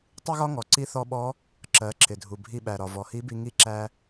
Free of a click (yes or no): no